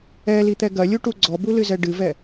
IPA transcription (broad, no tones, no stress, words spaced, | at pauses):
ɛlit̪ɛ ɡɐlʲuʈu ɡ͡ǀɔbulɨzɛ ɖɨvɛ